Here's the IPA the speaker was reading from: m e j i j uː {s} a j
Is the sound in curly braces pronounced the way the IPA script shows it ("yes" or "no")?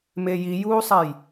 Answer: no